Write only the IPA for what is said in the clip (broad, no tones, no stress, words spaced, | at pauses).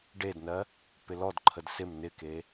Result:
ɖednɜ | pɪlɔdǃʰəd sɪm nɪke